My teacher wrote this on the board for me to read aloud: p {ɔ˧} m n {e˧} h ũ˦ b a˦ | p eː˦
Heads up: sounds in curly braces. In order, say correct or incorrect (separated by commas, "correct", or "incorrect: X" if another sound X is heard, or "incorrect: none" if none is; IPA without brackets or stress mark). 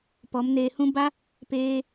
incorrect: ɔ˨˦, correct